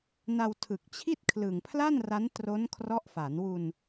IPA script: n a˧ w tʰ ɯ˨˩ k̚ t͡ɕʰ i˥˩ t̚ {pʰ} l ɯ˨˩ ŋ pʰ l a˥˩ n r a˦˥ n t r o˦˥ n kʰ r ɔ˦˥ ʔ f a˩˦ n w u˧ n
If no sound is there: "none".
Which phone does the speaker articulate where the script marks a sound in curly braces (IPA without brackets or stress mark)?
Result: kʰ